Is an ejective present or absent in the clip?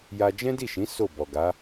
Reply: absent